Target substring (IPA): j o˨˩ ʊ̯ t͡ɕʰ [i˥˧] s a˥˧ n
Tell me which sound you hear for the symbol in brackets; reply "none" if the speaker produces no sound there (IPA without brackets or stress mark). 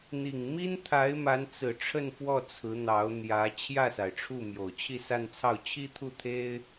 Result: i˥˧